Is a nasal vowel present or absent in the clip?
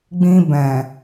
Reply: present